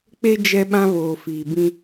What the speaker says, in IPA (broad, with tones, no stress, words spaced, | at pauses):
k͡pe˦ d͡ʒɛ˦ɓã˦ βoː˨fiː˨bĩ˦